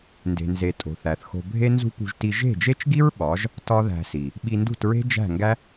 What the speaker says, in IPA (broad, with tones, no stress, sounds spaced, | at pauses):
n d e̤˨ n z e˨ tʼ o̤˨ θ æ˨ θ x o̤˧ bʱ e˦ n z ṳ˦ p ṳ˧ ʒ t i˧ ʒ e̤˦˨ d͡ʒ e˦ t͡ʃ ɡ i˦ ɹ ɓ ɒ˨˦ ʒ | t ɒ˦ ð æ̤˧ s i˨ | ɓ i˧ n d ṳ˦˨ t ɹ e̤˦ d͡ʒ æ̤˦˨ ŋ ɡ æ˦